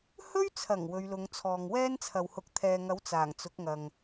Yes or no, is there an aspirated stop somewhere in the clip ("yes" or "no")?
yes